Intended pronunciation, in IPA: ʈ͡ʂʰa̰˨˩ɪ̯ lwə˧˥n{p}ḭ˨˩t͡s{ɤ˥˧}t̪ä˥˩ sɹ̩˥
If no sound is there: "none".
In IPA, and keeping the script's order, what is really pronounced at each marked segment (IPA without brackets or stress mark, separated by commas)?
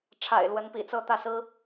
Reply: p, ɤ˥˧